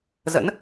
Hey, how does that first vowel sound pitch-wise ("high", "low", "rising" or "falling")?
rising